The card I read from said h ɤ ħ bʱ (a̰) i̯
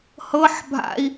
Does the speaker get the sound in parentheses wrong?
no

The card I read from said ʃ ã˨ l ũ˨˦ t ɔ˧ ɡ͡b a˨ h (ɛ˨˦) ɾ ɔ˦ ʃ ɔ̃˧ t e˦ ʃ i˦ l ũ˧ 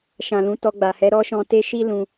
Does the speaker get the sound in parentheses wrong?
no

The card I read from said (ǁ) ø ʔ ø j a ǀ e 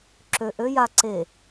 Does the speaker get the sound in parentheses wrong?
no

